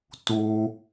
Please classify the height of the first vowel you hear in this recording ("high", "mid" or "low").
high